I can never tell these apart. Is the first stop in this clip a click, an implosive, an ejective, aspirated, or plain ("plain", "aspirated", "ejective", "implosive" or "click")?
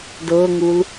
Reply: plain